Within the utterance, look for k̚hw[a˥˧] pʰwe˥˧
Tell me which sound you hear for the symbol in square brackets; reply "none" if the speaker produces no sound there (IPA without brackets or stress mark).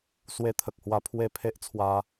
a˧